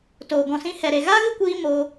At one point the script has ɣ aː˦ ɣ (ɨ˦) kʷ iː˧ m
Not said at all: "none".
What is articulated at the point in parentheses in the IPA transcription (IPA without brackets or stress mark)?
ɨ˦